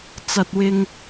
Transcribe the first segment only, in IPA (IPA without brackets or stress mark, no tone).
t͡s